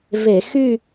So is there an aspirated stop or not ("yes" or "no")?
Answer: no